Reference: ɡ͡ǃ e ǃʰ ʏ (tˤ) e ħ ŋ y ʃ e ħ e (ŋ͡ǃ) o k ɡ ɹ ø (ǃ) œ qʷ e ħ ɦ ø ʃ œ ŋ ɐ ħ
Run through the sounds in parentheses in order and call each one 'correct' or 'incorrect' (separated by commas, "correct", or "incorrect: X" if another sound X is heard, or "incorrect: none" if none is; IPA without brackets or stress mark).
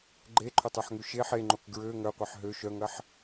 correct, correct, incorrect: ŋ